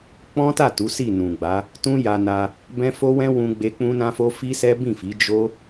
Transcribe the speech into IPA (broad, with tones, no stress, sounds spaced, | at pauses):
k͡p ɔ̃˦ t a˦˨ t u˨˦ s i˦˨ n ũ˨ ɡ͡b a˨˦ | t ũ˦ j a˧ n a˧ | b ɛ̃˦ f o˦ w ɛ̃˦ w ũ˧ ɡ͡b e˧ k͡p ũ˦ n ã˦ f o˦ f i˦ s ɛ˦ b ĩ˦˨ f i˨˦ d͡ʒ o˦